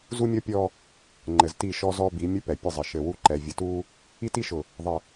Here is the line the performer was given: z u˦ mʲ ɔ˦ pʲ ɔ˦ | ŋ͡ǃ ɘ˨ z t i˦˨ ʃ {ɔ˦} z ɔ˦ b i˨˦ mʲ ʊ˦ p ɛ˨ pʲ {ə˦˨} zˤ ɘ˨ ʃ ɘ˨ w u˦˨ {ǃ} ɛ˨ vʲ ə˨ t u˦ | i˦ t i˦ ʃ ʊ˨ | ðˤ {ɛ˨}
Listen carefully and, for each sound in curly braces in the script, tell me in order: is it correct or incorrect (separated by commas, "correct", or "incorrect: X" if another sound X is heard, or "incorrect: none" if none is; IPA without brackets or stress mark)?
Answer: correct, correct, correct, incorrect: ə˨